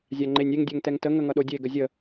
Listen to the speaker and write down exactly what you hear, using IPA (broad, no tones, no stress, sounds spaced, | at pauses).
zʲ a ŋ͡ǃ e nʲ e ŋ dʲ ɛ ŋ t ɛ ŋ t ə ŋ ə ŋ ʌ ɗ o dʲ e ɡ ə zʲ ə